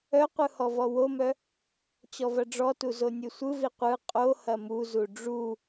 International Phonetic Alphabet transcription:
œ qʷ ɯ h ɔ v ɔ w o m œ | t͡ɕ ɔ v ɐ ɖ͡ʐ ɔ t u z o nʲ ɯ sʷ ɯ v i qʷ ɯ qʼ o h ɐ m u z u ɖ͡ʐ u

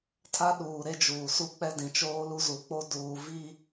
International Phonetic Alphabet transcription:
tʰ a˦ ɗ uː˨ ɾ e˦ d͡ʒ uː˨ s u˦ k͡p ɛ˦ d ĩ˨ t͡ʃ oː˦ l u˦ z u˨ k͡p o˦ d uː˨ v i˦

